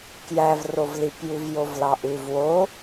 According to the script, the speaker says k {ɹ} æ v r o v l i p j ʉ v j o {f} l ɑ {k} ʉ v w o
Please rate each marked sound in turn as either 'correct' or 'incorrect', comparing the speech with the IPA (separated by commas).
incorrect, incorrect, incorrect